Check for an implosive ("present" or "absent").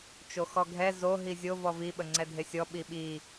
present